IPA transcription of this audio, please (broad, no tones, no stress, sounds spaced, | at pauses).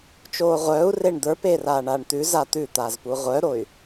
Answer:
t͡ʃ oː ʁʷ œː u̯ r e ɳ d̪ ə˞ p eː r aː ɳ aː ɳ t̪ ʉ z a t̪ ʉ t̪ aː z p u ʁʷ œ ɾ o y̯